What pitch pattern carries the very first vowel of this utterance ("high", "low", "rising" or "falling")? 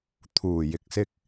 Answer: low